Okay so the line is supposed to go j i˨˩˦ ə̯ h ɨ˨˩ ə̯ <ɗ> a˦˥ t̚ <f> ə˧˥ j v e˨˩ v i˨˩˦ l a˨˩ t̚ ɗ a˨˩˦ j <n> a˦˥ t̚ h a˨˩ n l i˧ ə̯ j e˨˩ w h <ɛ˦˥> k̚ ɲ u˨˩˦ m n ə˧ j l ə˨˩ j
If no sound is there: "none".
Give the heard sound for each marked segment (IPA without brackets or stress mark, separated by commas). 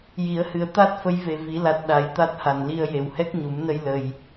t̪, f, t̪, ɛ˦˥